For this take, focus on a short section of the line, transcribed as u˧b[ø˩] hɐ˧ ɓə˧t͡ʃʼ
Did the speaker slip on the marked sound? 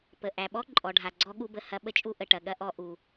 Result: yes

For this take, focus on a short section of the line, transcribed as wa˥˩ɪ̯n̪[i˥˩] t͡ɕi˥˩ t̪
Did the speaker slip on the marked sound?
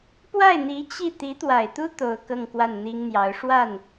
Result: yes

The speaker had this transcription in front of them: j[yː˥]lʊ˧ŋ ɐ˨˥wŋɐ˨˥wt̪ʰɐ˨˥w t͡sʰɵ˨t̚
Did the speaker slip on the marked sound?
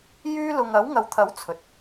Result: no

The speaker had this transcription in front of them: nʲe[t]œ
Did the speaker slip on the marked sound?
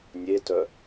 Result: no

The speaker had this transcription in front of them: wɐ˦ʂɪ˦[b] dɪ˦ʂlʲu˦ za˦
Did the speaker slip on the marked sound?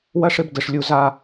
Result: no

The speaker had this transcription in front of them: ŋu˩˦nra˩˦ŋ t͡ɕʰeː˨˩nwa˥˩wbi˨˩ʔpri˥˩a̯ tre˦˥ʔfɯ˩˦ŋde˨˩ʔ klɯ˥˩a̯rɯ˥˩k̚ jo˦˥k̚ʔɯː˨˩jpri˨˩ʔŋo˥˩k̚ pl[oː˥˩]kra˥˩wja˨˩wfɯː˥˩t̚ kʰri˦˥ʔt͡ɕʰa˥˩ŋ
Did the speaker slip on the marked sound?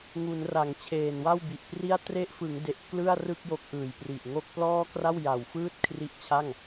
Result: yes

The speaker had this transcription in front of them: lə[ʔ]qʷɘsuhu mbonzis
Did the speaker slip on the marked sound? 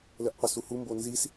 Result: no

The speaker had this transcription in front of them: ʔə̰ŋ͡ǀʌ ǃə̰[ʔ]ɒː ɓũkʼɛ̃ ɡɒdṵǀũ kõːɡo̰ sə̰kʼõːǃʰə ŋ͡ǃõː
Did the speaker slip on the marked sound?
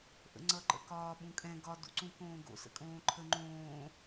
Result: yes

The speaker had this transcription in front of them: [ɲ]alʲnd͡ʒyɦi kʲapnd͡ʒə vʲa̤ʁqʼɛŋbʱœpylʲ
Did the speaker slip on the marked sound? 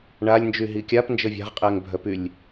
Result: yes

